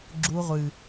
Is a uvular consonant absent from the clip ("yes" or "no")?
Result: no